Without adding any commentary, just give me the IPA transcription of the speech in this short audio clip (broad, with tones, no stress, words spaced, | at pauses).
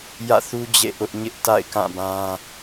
jä̰˦˨θu˦ d͡ʑḛ˦˨ʔʊ˦ʔ ɲɪ˦ʔta̰˦˨ɪ̯kã˦˨bã˦